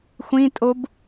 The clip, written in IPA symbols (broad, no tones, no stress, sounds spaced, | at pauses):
xʷ ĩ tʼ o b